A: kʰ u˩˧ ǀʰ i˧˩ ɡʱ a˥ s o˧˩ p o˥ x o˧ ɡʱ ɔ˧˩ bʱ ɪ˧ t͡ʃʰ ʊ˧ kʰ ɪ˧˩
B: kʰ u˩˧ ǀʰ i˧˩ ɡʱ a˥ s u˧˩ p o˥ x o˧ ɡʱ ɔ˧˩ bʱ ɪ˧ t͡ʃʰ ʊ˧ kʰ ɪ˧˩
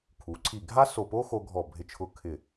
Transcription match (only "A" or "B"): A